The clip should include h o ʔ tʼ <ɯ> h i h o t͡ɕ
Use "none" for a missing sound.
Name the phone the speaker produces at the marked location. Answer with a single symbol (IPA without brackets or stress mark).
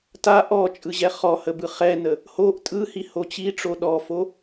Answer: ɯ